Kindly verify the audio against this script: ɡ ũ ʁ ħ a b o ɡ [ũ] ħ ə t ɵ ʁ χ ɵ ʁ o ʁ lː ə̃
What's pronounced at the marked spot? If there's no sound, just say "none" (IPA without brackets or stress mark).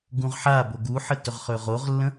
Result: u